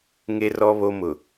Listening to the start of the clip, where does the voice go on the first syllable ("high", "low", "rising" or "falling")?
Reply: high